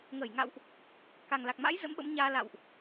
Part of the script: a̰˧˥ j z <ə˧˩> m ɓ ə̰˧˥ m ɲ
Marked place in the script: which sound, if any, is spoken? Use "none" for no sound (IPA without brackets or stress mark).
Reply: ə̰˧˥